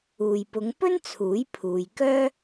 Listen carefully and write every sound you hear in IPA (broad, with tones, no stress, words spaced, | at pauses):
uː˨jpʊ˨˧ŋpɵ˥n t͡sʰuː˨˥jpʰuː˨jkœː˥